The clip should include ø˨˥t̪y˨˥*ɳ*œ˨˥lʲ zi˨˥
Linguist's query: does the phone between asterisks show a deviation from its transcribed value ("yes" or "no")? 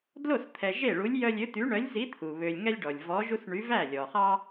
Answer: no